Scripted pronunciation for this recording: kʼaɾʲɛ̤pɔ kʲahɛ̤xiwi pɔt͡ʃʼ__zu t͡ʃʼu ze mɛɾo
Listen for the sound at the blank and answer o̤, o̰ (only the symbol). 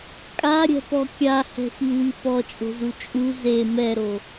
o̤